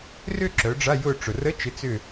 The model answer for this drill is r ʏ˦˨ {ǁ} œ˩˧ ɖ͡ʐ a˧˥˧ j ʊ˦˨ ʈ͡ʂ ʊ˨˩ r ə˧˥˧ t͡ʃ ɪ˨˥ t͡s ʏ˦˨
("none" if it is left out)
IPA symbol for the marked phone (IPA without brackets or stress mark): ǁ